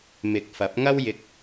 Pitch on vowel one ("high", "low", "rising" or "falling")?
rising